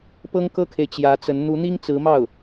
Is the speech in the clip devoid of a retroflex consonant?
yes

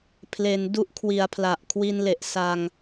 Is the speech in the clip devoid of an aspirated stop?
no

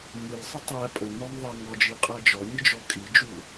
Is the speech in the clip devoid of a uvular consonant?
no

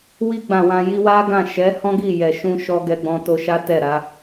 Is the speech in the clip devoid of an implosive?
yes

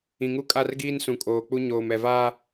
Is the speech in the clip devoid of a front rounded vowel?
yes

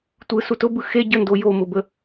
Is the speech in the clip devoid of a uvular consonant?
yes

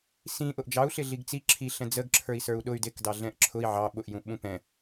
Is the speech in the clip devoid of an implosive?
no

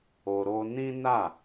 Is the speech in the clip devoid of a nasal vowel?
no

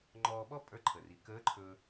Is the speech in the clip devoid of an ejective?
no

